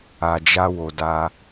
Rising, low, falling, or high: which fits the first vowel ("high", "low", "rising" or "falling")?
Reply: low